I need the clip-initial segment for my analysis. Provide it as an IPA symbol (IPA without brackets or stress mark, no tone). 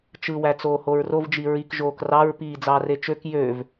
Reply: t͡ʃ